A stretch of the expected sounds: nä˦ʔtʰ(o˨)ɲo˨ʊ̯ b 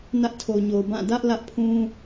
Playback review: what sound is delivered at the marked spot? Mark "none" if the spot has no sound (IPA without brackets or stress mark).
o˨